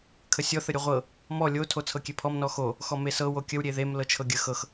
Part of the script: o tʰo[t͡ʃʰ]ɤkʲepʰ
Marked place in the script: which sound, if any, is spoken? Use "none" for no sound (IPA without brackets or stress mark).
t͡sʰ